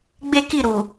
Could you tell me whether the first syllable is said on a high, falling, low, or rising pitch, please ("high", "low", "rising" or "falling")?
high